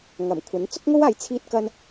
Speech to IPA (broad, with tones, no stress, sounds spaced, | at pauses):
ŋ ɐ˨˩ m kʷʰ ɐ˨˥ n t͡s ʊ˥ k̚ ŋ o˥ w aː˨˥ j t͡sʰ iː˥ t̚ k ɐ˥ n